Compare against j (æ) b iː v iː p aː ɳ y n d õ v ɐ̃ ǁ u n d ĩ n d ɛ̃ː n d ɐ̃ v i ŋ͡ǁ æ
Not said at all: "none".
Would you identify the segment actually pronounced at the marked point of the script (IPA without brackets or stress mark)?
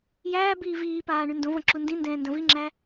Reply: æː